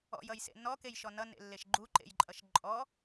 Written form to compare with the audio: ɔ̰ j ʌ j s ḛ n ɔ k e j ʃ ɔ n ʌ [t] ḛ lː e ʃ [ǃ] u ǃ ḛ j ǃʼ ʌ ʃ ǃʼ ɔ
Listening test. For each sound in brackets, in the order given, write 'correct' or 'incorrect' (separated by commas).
incorrect, incorrect